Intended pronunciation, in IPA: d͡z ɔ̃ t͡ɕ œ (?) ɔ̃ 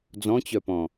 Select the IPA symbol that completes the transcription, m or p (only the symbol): p